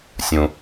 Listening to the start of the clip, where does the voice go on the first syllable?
low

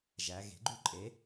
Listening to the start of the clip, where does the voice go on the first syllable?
rising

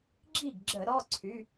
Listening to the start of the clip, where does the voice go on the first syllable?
falling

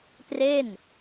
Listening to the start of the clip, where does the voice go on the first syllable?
falling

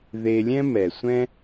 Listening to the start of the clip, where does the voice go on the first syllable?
low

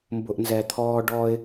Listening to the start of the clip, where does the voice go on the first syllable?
low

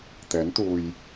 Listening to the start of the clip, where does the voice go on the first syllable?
rising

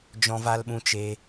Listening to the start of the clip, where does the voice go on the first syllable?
high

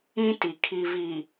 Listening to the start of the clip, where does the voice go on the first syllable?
high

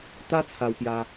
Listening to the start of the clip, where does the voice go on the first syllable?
high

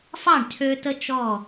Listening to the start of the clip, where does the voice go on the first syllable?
falling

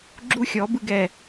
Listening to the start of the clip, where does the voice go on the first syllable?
high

